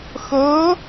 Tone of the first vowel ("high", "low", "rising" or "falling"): rising